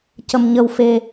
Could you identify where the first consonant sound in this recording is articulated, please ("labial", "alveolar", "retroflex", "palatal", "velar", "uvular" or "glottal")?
palatal